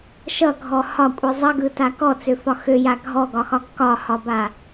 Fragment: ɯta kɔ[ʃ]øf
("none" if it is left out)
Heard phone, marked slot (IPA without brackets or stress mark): t͡s